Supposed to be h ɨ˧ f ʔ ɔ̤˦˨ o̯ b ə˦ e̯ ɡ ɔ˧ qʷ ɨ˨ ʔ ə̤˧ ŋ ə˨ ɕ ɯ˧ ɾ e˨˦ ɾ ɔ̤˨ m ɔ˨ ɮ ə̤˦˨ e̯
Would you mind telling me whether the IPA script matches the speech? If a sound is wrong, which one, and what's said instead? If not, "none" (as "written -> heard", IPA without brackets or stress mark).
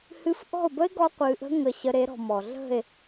ɯ˧ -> ə˧